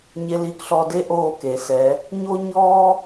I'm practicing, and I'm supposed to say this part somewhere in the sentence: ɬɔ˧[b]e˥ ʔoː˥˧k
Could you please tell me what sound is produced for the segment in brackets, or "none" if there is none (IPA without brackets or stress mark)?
d